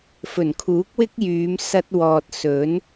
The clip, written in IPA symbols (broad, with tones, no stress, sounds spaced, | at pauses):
f ɵ˨˩ n kʰ uː˨˥ k̚ w ɪ˥ k̚ j yː˨˧ m s ɐ˧ t̚ w ɔː˨ t̚ s ɵ˨˥ n